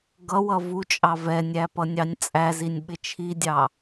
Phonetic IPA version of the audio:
ɡʌwʌ vut͡ʃʼɑ vɛnʲæpʌnʲɑnʲ t͡sʼæzinʲɓɪ t͡ʃʰidʲɑ

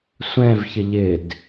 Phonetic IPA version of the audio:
sʷɛ̃vçɪ ʎɪd

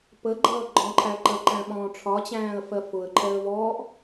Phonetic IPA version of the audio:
pəɡ͡ǃʌː ɡ͡ǃɔ̃ǃʰæ ǃəǃæ̃ɓɔ̃ː ʈ͡ʂʰɒt͡ɕæ̃ːə̯fɜ fʊə̯ǃʰɛə̯ vɔːʔ

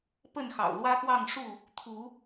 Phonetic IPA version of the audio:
pə˥˨nxɑ̰˨˩ʊ̯lwä˦xwɑ˥˨ŋ ʂu˥˨ | t̪ʰu˨˦

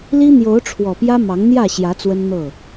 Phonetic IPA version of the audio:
li˦n̪jo˨˦ʊ̯ʈ͡ʂʰwɔ˨˩pjä˦ mɑ˨˦ŋn̪jä˥˨ɕjä˨˦ t͡swə˦nn̪ɤ˥˨

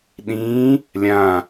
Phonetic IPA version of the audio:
ɗĩː | lʲãː

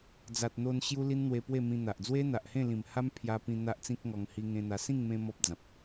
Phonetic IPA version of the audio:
d͡za˨t̚n̪o˧n ɕju˦li˦nn̪we˧ pwe˥˧mĩ˧n̪a˨ʔ d͡zwe˦n̪a˨ʔhẽ˥˧ lĩ˨˩mha˦m pʰja˧pĩ˧ n̪a˦ʔt͡sĩ˦k̚ŋɔ˧ŋ hi˧ŋẽ˧n̪a˧ sĩ˥˧ŋmẽ˧ mɔ˦p̚d͡zã˨p̚

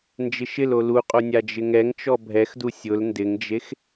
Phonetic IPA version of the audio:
nd͡ʒɪʃɪlo luqʼo nʲad͡ʒɪŋɛŋt͡ʃɔ bʱɛxdu sʲʊl ndɪŋd͡ʒex

